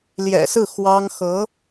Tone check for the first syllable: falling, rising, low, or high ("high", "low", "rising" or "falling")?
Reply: low